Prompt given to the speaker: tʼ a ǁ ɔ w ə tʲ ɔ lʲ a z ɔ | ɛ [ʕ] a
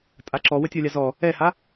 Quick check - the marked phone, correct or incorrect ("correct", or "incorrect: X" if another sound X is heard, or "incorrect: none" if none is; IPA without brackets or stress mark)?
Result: incorrect: h